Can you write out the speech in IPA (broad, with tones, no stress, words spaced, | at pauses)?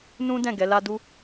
nũ˦ dɛ̃˦˨ɡɛ˨˦la˦ du˧